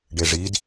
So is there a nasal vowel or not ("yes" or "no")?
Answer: no